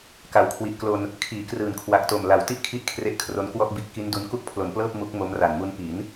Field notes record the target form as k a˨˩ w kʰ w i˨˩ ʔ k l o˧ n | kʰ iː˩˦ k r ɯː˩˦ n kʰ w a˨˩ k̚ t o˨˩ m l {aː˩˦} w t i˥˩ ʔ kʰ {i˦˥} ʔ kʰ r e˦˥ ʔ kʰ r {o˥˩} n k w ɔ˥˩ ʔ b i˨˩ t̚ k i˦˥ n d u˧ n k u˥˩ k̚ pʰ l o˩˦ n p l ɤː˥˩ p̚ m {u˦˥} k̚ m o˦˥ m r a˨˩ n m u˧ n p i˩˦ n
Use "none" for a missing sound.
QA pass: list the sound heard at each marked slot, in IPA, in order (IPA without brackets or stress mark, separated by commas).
a˩˦, i˦˥, o˧, u˦˥